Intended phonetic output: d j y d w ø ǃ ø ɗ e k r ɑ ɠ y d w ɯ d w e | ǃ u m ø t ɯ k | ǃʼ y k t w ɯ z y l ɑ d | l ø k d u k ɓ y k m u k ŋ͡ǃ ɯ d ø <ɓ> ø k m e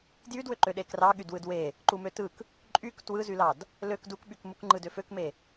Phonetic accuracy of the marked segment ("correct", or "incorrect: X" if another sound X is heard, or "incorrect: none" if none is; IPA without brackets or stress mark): incorrect: f